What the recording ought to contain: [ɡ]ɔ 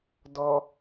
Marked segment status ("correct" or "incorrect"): incorrect